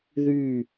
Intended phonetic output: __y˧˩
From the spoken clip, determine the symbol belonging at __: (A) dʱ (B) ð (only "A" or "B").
B